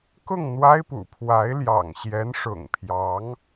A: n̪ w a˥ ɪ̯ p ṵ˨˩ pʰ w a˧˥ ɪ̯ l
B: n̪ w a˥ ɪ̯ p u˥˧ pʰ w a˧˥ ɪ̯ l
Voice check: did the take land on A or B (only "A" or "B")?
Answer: A